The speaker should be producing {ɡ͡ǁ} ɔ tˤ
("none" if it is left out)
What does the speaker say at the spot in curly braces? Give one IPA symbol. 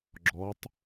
ɡ͡ǁ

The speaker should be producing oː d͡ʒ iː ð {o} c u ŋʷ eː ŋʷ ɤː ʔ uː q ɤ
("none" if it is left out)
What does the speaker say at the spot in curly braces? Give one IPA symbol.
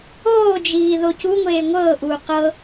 o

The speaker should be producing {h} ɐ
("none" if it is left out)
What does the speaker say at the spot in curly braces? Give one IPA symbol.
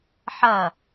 ħ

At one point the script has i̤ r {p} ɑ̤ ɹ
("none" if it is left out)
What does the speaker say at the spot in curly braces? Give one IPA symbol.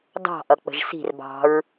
b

